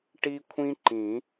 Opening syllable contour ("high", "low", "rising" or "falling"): high